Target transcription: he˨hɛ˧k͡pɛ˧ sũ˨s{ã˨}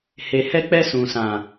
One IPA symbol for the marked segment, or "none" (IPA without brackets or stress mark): ã˨